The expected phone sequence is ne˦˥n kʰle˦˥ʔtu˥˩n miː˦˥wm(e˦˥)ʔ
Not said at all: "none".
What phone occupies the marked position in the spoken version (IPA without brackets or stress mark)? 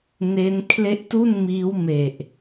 e˨˩